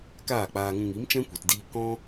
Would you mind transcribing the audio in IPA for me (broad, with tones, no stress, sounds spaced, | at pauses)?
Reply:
k aː˦˨ k͡p aː˧ ŋ ũ˧ ŋ i˨˦ m t͡ʃ ɛ̃˦ kʷ i˨ t d iː˧ k ɔ̃˦